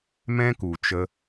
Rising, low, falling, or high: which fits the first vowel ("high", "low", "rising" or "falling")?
high